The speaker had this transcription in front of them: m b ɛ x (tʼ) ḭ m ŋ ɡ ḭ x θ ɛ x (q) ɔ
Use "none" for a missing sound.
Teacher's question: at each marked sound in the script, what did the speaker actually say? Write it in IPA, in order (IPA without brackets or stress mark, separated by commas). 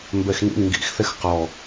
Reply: n, q